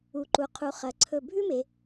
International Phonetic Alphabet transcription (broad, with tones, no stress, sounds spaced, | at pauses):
u˩˧ ǃ u˩˧ qʰ u˩˧ χ ɐ˩˧ ǀʰ ɵ˧˩ bʱ ʉ˥ m e˩˧